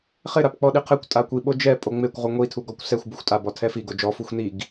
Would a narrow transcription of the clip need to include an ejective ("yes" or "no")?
yes